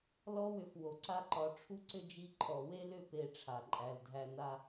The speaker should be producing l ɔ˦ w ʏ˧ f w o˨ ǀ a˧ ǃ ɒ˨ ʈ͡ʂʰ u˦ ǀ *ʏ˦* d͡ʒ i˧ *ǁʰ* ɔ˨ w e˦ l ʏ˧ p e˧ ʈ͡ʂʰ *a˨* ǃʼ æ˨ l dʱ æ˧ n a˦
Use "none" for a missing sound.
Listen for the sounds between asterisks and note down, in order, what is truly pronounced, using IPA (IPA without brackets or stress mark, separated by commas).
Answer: ʏ˦, ǃʰ, a˨